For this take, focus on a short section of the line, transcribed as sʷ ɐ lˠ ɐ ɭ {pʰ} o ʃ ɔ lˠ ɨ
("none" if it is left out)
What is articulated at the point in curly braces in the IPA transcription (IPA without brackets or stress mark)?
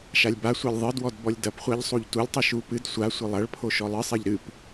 pʰ